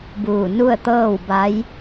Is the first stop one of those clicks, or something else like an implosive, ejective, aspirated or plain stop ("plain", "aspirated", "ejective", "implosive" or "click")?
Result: plain